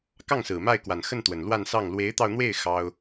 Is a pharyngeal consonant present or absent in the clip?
absent